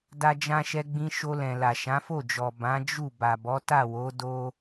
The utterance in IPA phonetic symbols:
d a˧ d͡ʒ ã˧ ʃ ɛ˧ ɡ͡b ĩ˧ ʃ o˧ l ɛ̃˨ l a˨ ʃ ã˨˦ f o˦˨ d͡ʒ ɔ˨ b ã˨˦ d͡ʒ u˦˨ b a˨ b ɔ˨˦ t a˦˨ w o˨˦ d o˦

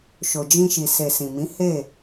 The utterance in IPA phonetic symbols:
ʃ o˨ d͡ʒ ĩ˧ ʃ i˨ s e˨ s ĩ˨ m ĩ˨˦ h e˦˨

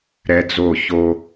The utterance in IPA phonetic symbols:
ɾ ɛ˦ d͡z o˦˨ ç o˦

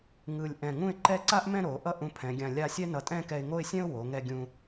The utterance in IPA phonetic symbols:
ŋ ɯ˧˩ lʲ ʔ ɛ̃˧˩ ŋ ũ˥˧ ɪ̯ ǃ ɛ˥˧ ǀ a˥ ʔ m ɛ̃˥˧ ɾ o˩˧ ʔ ʌ˥ ʔ ũ˧ pʰ ɛ̃˩˧ ɡʲ ã˧˩ lʲ a˥˧ sʲ ɛ˥ n ʌ˧˩ tʼ ɛ̃˥˧ k ɛ˧ ɪ̯ ŋ o˥˧ ɪ̯ sʲ ɛ̃˥ ʊ̯ w o˩˧ ŋ ɛ˧ ɡʲ ũ˧

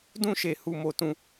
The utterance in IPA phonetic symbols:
d ũ˦ ʃ e˧ h u˧ m o˧ t ũ˧

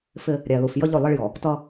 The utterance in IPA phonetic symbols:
f ɪ˦ | ɾʲ æ˨ l u˨ f j ə˦ ʎ ʊ˦˨ lˠ ə˦ ɭ j ɔ˨ | t ʌ˦

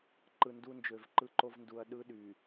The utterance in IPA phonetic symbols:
ǃ ɯ˨ n d u˦ n d͡ʒ ø˨ v ǃ ɯ˦ ǃ o˦ v n d u˨ ɐ̯ ɗ ɯ˦ ɗ y˨

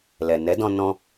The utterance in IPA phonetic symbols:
l ɛ˨ n ɛ˨˦ d ɔ̃˧ n ɔ̃˧

